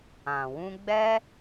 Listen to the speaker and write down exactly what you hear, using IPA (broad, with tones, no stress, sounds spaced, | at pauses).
ã˨ w ũ˧ ɡ͡b ɛ˦